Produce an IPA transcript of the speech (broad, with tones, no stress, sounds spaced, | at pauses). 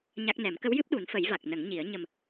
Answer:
ɲ a˦˥ k̚ n ɛ˨˩˦ m k ə˧˥ w j ɨ˦˥ p̚ ɗ u˨˩˦ n f ə˨˩˦ j v a˨˩ k̚ n ə˨˩˦ ŋ ɲ i˨˩˦ ə̯ ɲ ə˨˩ m